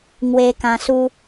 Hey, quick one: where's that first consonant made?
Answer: velum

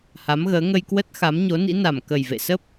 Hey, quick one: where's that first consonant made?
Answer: throat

